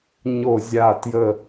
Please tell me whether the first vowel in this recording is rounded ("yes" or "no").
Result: yes